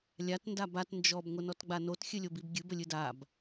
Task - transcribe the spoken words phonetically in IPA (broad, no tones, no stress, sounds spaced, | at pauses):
lʲ a t n d a b a t n d͡ʒ ɔ b ŋʷ ə n ɔ t ɡ͡b a n o t xʲ ɨ lʲ o b i b ɡʲ ɨ b ə lʲ ɨ d a b